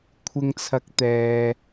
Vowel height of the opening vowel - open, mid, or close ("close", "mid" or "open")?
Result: close